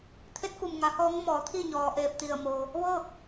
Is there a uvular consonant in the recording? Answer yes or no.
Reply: no